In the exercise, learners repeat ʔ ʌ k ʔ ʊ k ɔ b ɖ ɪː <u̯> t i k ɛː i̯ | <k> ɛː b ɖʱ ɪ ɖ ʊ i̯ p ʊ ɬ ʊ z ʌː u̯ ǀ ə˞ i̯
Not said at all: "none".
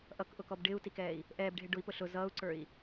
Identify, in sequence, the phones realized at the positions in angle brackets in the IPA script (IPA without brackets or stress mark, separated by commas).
u̯, ʔ